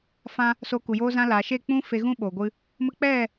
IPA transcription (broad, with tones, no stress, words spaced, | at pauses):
fã˧ | soː˧ku˨joː˦zã˦ laː˨ʃe˦˨k͡pũ˦ fe˧ɣũ˦ ɓoː˨ɡʷɨ˧ | mə˧ k͡pɛ˦˨